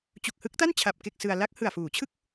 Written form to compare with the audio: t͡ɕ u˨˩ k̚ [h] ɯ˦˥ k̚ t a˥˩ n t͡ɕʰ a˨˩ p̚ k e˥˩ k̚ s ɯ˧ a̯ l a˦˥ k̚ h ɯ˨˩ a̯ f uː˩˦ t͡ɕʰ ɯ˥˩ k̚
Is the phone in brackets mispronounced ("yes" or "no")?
no